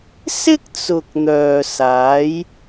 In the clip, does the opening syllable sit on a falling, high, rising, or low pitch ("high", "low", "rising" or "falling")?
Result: high